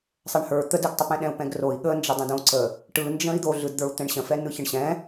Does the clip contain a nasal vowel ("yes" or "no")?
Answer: yes